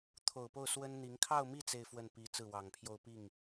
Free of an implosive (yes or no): yes